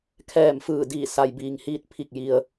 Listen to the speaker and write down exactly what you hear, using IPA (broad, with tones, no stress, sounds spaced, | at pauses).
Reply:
kʰ ɛː˧˩ m f ɯː˧˩ d iː˧˩ s a˩ j b iː˩ ŋ h iː˧ t̚ pʰ i˧˩ k̚ j i˩ ə̯